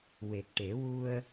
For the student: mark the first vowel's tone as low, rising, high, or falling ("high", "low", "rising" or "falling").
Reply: low